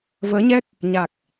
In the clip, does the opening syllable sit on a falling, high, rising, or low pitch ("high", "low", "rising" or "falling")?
rising